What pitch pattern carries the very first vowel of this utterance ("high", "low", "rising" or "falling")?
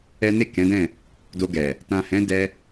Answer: high